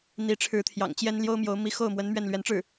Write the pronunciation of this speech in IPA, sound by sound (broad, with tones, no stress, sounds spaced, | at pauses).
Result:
n̪ i˧˥ ʈ͡ʂʰ ɻ̩˧˥ t̪ʰ j ɑ̰˨˩ ŋ t͡ɕ j ɛ˥ n l j o˥ ʊ̯ m j o˧˥ ʊ̯ m i˧˥ x o˥˩ ʊ̯ m w ə˧˥ n m ɥ ɛ˥˩ n l ɥ ɛ˧˥ n ʈ͡ʂ ɻ̩˥˩